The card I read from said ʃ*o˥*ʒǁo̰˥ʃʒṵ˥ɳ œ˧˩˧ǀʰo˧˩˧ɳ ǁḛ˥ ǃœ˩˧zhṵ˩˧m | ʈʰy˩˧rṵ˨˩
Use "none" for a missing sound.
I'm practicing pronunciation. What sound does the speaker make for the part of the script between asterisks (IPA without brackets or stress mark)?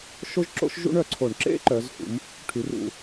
o˥